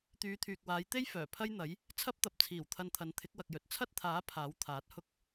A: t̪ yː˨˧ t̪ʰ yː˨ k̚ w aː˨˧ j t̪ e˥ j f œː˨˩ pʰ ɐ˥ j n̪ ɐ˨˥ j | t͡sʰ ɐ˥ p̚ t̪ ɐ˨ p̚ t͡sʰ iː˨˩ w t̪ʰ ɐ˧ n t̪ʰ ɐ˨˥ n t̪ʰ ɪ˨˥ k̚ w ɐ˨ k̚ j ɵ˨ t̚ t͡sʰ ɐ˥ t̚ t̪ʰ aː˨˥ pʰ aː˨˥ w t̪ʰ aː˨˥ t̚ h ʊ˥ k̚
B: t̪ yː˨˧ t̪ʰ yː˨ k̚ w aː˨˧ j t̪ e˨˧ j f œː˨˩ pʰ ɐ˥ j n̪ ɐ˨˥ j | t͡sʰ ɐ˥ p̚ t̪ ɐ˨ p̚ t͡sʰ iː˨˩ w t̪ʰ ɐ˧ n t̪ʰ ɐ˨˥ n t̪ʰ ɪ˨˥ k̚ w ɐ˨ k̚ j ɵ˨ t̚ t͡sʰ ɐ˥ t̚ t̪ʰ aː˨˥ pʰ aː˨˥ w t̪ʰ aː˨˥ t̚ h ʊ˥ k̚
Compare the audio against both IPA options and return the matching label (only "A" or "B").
A